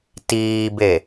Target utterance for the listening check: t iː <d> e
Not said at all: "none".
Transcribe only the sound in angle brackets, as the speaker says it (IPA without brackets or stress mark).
b